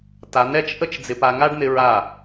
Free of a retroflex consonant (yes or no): no